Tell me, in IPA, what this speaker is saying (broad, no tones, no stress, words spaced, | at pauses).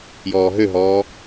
jɔːɦøɦɔː